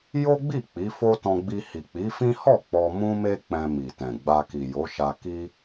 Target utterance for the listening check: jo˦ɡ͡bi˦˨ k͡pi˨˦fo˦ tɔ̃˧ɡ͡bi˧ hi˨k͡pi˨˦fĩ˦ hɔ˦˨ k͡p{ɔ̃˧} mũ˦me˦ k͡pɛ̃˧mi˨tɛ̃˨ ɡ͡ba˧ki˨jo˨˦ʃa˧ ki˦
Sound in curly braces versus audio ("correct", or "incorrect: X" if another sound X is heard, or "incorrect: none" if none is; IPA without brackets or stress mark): incorrect: ɔ˧